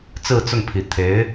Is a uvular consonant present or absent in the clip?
absent